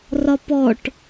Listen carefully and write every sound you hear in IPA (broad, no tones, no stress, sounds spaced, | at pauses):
r ɒ p ɔ ʈ